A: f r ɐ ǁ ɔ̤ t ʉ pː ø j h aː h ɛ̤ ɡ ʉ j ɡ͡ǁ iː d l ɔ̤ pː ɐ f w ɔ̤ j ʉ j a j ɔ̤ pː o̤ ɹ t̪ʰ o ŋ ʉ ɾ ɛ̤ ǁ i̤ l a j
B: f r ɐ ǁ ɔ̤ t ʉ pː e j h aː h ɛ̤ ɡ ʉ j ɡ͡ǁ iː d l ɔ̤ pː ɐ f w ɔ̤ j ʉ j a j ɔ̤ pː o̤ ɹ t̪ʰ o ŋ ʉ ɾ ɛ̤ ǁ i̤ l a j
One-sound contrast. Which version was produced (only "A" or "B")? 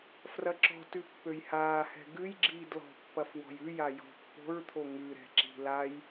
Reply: A